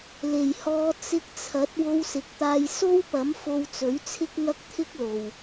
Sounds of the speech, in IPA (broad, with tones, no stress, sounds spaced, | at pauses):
l e˨˩ j h ɔː˨˧ t͡s ɪ˧ k̚ t͡sʰ ɐ˨˥ t̚ w o˧ w s ɪ˨˥ k̚ t̪ aː˧ j s o˥ w p ɐ˨˥ m f o˧ w t͡s ɵ˨˥ ɥ t͡sʰ ɪ˥ k̚ ŋ ɐ˥ k̚ t̪ʰ ɪ˥ k̚ l o˨ w